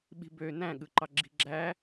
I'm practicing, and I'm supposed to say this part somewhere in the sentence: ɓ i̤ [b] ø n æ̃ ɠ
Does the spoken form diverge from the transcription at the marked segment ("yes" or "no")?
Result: no